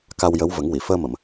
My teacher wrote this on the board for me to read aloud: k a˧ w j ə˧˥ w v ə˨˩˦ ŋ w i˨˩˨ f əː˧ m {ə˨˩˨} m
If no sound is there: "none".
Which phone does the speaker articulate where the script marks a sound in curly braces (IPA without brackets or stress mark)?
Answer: ə˨˩˨